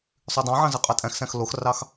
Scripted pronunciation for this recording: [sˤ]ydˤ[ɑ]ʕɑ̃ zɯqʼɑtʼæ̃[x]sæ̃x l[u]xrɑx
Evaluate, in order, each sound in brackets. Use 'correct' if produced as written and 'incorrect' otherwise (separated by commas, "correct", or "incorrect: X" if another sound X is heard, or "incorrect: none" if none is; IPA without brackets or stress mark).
correct, incorrect: ɑ̃, correct, incorrect: o